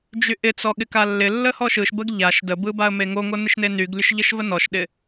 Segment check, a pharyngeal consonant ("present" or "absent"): absent